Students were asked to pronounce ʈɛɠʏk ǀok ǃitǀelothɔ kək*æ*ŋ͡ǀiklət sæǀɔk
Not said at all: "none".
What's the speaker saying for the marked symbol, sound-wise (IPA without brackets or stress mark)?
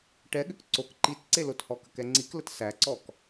ɛ